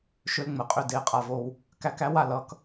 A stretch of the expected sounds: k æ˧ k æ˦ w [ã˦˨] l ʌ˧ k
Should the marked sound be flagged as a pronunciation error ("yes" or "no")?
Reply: yes